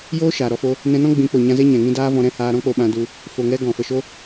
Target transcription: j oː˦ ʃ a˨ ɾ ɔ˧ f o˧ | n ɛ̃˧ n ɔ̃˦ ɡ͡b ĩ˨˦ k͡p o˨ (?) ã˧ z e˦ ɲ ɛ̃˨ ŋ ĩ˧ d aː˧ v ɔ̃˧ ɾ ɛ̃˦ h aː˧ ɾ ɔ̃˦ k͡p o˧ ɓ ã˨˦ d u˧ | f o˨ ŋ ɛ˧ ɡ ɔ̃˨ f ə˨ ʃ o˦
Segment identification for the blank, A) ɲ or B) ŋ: A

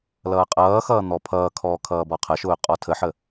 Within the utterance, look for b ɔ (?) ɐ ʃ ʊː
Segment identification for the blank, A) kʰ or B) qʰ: B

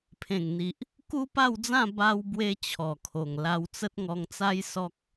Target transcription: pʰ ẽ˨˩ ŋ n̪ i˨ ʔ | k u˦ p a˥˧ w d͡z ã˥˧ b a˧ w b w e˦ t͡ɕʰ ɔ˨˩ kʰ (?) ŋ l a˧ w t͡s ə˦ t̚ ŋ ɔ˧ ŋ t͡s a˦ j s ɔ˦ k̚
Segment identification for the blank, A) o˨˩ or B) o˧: A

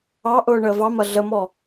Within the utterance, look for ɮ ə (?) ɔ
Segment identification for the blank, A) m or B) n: A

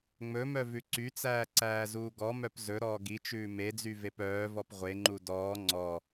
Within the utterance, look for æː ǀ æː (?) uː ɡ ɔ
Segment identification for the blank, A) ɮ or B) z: B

